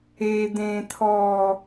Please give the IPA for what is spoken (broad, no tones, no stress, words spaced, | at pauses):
e d̪ẽt̪ʰɔː